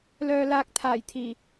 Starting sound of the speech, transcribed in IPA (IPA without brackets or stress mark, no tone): l